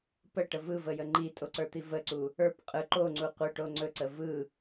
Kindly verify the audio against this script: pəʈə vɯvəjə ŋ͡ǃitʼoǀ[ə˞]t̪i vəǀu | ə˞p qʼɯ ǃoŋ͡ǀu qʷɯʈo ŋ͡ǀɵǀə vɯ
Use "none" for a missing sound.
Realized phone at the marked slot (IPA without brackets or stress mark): ə˞